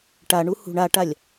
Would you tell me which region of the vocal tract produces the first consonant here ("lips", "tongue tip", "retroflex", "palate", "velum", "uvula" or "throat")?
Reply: retroflex